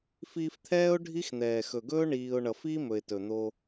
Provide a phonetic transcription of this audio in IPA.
fiː˧ft̪ʰɛː˦ʊ̯ ɖʱi˦xn̪ɛː˨ xɵ˨ɡɵː˦ ɳiː˧ʊ̯ ɳʌ˨f iː˦mɵ˨ɪ̯ tɵ˨n̪o˧

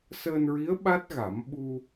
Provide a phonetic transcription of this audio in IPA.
səː˧nɹi˧˥ə̯ ɓa˦˥t̚ɣa˨˩˦m ɓu˧

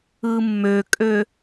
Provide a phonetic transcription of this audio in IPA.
ɯmːøkʼø

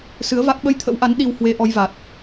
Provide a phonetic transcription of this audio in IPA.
sɨ˨˦ə̯va˦˥k̚ ɓə˧jt̪ʰə̰˧˥wʔa˨˦n ɗi˧w hwe˧ʔɔ˧jva˨˩t̚

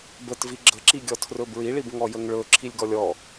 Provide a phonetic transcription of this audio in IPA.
bətvi ɡ͡ǁəǁiɡʲɔ tʰrɵbɹiɭib ŋɔjəŋɭɵ ǁʰilʲɡɔlʲɔ

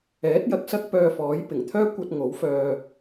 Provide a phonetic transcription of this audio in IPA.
ɛː˨˥t̚jɐ˨k̚sɐ˥k̚ pœː˧fɔː˨˥j pɪ˨˩ŋt̪ʰœː˥ kʷɐ˧t̚ ŋo˨˥wfœː˧

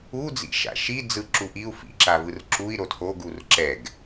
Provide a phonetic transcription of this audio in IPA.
u d͡zḭʃa̰ʃi d͡zɯ ǁuʔiu̯ fḭ ǁavɯrǁui̯ ɾotʰoɡ urǁɛɡ

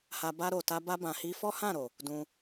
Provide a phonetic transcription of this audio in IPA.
ha˧ ba˧ɾo˨ta˧ ba˧bã˨hi˧ fɔ˦hã˦˨ɾo˨ | dũ˧

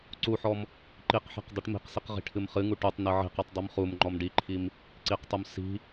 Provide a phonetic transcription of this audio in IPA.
ǀuħɔm | ǃiqħa̤q dˤiʈmi̤qsiq ʁi̤ʈʰɨmχɨŋu ʈutˤ nɨʕi̤qɨtˤ dˤimχumŋ͡ǃɔm ɖiǃʰim | ǀiqtˤum si̤

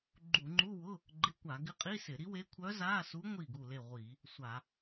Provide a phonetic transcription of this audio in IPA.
ɡ͡ǃu˧˩˧ŋ͡ǃu˧˥˧wʊ˧˥˧ | ɡ͡ǃɪ˧˥˧kʷa˧˩˧ɡɪ˧˥ qʼi˧˥˧sɪ˧˩˧ɾi˧˥we˧˥ kʷʰœ˧˥za˧˥˧su˧˥ ŋʷi˥˩ɡu˥˩le˥˩ ʁʷi˧˩˧ | sʷa˧˩˧

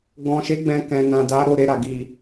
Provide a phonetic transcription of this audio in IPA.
ɡɔ̃˨ʃe˨˦ ɡ͡bɛ̃˧ kɛ̃˨nã˨da˨˦ ɾo˦˨ɾe˧ɾa˨ ɡi˨

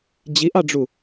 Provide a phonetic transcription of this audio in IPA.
d͡ʑiʔɑɖ͡ʐu

